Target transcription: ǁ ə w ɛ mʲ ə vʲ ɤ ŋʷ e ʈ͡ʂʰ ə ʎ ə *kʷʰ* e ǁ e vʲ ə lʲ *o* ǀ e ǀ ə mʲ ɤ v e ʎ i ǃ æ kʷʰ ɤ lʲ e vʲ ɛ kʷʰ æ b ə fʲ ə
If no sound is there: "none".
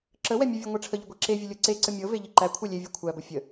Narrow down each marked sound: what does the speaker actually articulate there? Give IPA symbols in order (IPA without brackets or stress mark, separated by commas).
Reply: ɡʷ, ɤ